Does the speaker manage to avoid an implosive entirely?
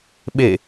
no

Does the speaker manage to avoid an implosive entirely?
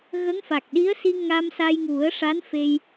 no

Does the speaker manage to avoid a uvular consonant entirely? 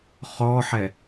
no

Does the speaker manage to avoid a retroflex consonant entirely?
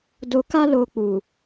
yes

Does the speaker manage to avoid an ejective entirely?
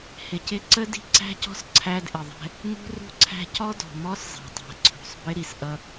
yes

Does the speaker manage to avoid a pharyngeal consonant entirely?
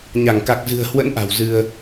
yes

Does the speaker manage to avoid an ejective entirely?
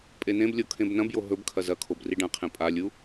no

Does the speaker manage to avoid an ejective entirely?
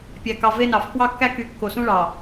yes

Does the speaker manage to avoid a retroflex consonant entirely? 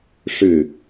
no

